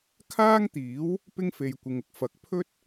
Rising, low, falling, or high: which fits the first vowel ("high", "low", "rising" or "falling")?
high